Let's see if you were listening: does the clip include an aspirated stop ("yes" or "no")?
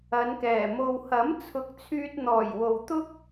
yes